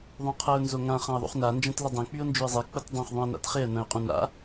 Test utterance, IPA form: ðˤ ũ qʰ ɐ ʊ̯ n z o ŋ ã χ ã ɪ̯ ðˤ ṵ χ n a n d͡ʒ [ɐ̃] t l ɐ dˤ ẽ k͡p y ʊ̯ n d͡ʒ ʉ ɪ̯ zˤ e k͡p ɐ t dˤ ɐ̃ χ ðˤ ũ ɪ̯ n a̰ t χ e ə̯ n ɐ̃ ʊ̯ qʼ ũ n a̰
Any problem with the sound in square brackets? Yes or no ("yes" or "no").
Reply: no